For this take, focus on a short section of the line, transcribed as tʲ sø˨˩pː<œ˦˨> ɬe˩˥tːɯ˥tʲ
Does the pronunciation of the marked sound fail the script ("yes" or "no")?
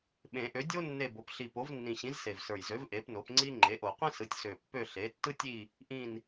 yes